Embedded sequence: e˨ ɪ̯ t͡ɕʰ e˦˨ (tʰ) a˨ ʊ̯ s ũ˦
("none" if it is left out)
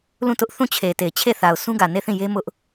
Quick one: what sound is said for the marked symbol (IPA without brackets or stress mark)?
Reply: θ